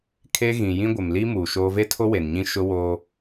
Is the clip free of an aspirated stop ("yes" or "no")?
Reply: no